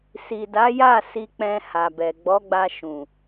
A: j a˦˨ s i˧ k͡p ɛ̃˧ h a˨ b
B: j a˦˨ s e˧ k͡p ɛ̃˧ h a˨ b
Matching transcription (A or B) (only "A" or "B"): A